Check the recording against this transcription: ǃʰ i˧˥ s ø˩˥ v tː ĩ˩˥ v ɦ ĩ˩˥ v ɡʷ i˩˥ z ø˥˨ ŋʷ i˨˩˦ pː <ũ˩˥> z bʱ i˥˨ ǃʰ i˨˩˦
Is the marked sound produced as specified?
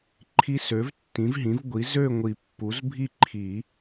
no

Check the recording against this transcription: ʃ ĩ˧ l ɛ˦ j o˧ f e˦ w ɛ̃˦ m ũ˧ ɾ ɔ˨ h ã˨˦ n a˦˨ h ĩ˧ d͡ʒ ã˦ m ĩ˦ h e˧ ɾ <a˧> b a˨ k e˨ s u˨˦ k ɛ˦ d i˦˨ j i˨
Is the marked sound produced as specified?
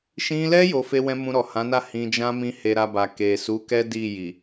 yes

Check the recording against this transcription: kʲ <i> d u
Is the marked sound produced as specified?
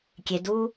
no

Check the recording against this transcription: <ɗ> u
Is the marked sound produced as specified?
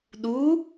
yes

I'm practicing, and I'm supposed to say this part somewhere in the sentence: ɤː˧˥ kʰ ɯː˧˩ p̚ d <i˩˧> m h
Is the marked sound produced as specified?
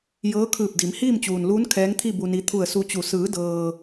yes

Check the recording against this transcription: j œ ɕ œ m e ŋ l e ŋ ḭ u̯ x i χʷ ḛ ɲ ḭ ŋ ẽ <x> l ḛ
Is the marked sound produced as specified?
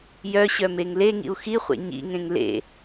no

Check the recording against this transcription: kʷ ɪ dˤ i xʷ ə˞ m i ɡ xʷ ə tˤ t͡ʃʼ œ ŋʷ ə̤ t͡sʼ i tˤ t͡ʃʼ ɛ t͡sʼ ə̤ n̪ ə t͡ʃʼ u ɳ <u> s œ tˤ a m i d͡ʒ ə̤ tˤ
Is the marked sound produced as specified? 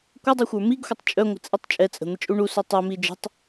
yes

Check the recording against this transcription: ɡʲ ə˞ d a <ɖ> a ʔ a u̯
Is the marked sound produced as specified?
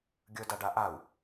yes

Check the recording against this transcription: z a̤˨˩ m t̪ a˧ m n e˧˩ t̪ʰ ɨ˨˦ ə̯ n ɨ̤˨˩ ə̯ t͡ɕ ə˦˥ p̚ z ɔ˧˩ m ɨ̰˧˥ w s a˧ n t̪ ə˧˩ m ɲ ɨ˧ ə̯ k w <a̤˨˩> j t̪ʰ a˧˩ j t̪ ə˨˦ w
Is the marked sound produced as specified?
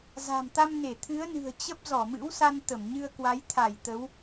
no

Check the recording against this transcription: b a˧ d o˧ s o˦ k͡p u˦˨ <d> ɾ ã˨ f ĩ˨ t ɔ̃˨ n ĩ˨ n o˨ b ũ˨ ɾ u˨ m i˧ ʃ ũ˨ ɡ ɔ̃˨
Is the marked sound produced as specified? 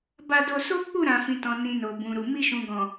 no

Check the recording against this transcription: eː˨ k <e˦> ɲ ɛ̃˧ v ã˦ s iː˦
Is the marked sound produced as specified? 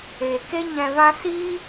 yes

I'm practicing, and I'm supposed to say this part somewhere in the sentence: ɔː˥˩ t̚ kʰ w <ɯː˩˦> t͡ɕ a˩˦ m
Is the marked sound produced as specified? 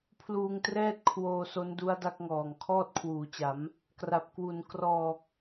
no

